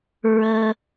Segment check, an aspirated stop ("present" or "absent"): absent